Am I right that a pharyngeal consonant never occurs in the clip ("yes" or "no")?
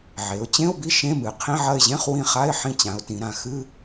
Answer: no